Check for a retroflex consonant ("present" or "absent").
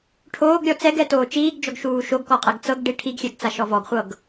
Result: present